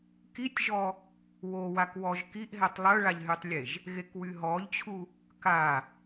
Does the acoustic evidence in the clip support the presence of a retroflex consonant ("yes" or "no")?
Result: yes